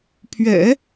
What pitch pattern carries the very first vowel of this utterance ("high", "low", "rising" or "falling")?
low